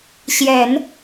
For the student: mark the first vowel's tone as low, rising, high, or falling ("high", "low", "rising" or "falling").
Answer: low